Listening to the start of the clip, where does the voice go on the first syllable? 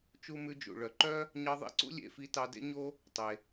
high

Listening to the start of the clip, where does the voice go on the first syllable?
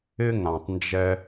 high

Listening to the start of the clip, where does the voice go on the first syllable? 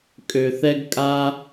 low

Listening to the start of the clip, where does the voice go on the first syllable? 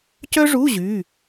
high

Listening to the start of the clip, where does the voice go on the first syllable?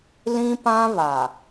high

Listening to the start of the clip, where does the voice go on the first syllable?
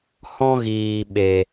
high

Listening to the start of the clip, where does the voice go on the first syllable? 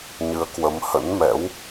rising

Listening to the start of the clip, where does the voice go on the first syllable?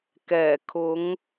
low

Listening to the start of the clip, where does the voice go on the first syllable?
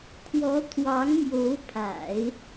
rising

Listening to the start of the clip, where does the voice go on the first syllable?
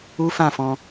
high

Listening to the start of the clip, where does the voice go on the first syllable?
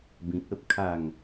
low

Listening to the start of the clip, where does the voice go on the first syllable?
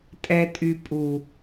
low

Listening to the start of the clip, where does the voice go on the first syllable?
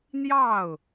falling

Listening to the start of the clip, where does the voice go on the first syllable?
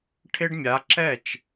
high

